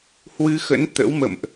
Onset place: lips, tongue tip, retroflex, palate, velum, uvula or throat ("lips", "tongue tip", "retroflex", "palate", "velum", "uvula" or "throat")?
throat